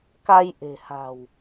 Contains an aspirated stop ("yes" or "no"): no